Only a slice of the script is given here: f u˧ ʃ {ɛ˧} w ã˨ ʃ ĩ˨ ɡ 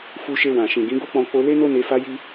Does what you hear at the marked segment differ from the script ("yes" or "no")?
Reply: yes